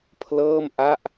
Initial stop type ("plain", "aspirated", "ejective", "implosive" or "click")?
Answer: aspirated